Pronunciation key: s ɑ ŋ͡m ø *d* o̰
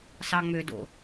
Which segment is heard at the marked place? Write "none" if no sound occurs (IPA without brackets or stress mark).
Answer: d